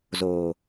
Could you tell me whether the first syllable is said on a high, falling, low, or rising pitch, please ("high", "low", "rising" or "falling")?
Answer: low